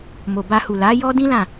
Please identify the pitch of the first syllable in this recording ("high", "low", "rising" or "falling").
low